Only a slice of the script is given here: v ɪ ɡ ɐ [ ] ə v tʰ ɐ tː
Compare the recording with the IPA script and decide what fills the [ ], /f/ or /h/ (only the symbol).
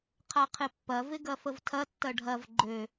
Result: f